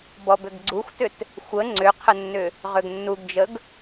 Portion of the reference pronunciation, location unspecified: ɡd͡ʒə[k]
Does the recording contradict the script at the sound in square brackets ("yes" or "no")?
yes